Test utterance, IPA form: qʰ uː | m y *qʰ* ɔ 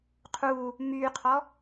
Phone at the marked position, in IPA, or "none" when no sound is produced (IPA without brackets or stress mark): qʰ